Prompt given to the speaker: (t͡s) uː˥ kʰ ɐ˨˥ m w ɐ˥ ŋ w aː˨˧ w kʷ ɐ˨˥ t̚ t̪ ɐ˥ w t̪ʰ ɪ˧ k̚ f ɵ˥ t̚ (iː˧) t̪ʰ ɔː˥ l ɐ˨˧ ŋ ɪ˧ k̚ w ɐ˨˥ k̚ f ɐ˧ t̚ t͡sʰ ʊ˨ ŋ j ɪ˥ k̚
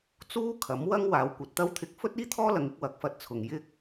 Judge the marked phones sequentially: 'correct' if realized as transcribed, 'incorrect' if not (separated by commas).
correct, incorrect